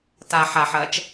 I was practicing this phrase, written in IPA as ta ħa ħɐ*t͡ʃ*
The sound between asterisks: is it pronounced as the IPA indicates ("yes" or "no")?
yes